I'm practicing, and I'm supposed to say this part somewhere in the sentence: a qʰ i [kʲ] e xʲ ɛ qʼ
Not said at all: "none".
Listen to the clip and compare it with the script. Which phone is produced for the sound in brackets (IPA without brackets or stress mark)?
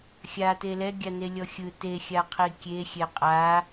kʲ